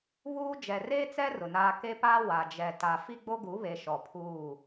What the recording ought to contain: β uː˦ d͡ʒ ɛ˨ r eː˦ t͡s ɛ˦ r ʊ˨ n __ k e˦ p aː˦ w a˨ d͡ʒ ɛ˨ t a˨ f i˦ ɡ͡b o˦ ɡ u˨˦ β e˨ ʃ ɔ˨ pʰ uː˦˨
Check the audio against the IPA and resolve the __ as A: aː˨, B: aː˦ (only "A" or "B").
B